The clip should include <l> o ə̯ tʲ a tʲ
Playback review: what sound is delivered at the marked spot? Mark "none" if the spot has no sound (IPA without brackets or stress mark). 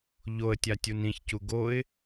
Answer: ʎ